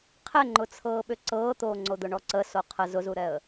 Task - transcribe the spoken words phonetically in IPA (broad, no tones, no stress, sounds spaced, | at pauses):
qʰ ɛ ŋ͡ǃ ʊ t͡sʰ ɤː ɓ ʏ ǀ ɤː t̪ oː ŋ͡ǀ o d̪ ʊ ɳ ɔ ǀ ə s o qʰ ə z ʊ z u ɾ ɛ ə̯